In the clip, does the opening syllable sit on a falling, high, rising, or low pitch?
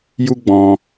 high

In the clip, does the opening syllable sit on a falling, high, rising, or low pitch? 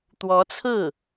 rising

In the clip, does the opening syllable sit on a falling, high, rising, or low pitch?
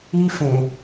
high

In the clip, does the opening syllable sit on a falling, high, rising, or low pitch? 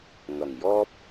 low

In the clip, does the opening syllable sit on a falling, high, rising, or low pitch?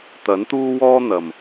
rising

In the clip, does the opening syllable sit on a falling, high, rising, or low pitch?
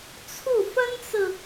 falling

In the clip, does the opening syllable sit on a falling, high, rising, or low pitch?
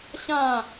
falling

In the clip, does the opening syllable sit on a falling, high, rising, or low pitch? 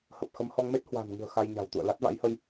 low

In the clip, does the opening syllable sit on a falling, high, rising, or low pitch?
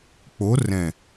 rising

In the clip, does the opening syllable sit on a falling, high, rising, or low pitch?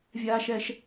high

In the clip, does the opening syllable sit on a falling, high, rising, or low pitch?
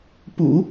low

